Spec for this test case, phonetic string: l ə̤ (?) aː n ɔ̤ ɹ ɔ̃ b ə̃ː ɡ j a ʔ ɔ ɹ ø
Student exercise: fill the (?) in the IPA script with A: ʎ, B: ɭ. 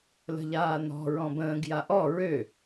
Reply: A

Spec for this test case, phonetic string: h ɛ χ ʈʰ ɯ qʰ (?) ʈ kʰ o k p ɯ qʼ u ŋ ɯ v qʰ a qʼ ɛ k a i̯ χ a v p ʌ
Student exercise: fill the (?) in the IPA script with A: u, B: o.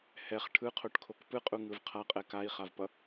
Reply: B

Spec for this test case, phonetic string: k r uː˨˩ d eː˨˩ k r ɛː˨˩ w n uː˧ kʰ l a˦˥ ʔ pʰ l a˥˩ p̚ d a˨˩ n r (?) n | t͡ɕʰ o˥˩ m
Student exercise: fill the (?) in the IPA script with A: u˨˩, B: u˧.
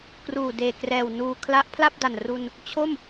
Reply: B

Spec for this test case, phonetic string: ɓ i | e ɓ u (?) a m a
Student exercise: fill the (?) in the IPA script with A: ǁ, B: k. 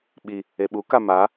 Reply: B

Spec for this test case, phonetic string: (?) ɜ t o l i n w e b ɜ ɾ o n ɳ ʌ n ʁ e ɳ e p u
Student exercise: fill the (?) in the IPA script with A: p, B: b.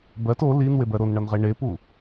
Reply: B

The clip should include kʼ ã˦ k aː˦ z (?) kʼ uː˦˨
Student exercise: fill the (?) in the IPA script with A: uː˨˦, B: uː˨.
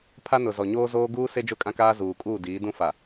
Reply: B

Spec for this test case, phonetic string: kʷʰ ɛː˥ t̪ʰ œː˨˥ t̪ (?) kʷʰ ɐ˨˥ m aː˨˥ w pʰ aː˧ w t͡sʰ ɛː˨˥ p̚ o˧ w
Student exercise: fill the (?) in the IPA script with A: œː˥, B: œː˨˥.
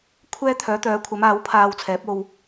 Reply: B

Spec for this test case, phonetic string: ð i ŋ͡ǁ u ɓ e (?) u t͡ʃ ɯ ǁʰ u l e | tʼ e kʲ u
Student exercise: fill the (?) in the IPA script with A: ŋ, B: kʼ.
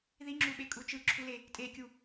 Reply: B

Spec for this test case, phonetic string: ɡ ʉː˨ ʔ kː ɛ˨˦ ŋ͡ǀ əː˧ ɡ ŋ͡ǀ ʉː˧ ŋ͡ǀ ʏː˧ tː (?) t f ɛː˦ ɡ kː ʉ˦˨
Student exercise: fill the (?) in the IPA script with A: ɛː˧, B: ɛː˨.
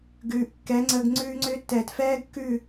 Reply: B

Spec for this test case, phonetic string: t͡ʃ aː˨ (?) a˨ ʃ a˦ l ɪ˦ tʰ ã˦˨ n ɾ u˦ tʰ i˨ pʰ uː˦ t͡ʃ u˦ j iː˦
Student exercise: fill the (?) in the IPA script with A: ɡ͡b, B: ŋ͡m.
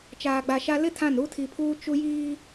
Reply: A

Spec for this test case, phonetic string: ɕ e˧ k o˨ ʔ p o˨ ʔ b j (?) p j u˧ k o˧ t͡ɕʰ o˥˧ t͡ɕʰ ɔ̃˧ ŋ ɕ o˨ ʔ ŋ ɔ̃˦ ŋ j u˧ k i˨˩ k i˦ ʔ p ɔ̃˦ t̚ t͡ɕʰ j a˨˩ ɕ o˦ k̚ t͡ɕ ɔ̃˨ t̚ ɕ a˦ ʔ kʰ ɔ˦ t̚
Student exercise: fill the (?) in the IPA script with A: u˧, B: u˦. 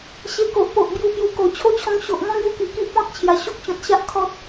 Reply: B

